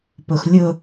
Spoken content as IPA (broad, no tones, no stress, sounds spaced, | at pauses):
p ɵ x lʲ ɵ